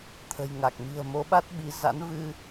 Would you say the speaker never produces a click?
yes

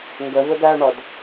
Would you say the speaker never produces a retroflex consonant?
no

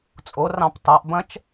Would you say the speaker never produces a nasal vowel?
no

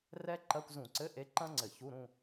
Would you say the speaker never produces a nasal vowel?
no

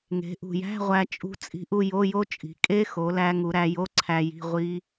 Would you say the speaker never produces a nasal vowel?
yes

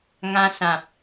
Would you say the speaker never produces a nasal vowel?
no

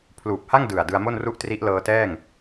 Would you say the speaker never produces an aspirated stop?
no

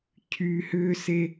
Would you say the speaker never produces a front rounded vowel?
no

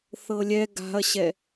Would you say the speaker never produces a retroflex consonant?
yes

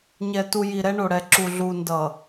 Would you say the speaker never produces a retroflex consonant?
no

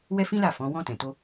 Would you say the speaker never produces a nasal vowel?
no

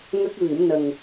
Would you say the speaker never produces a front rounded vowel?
yes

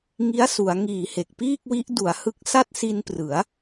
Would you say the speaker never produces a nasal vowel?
yes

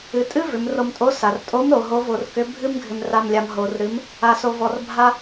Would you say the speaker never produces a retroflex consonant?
yes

